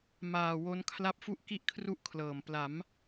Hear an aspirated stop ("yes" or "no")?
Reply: yes